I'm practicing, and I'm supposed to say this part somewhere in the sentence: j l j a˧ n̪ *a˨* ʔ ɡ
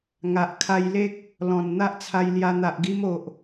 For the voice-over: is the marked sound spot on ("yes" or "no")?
yes